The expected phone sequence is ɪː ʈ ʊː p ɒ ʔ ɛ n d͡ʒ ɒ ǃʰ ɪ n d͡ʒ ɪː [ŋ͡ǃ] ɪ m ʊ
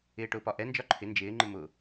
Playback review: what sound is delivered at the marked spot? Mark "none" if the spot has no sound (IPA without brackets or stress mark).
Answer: ŋ͡ǃ